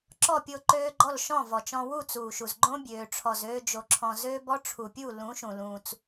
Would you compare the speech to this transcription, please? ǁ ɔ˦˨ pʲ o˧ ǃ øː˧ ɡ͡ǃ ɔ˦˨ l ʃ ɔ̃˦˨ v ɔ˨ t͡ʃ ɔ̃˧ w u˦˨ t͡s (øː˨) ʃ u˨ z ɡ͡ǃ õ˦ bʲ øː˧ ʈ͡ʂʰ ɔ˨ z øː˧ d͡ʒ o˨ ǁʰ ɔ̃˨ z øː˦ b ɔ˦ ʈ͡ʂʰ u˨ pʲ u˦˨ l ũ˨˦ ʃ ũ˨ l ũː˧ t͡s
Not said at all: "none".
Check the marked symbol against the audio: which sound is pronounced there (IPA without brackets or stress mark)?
uː˨